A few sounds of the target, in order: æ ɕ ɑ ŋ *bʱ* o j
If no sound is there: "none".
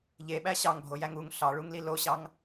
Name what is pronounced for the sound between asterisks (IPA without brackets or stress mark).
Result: bʱ